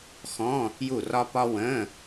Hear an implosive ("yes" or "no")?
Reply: no